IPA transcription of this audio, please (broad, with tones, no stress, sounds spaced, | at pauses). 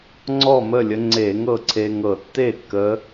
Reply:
ŋ͡ǀ ɔ˥˩ m ə˥˩ lʲ ə˧ ŋ͡ǀ e˧˩˧ ŋ ɤ˥˩ ǀʰ e˧ ŋ ɤ˧˩˧ tː e˥˩ kː ə˧˥